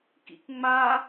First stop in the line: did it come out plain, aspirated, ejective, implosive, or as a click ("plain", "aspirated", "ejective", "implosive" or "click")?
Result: plain